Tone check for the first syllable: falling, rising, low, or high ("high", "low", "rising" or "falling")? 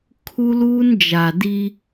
high